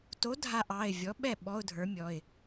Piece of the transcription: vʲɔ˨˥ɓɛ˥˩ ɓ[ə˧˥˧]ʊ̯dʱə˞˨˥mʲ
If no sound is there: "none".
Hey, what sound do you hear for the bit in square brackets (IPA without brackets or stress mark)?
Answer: ɔ˧˥˧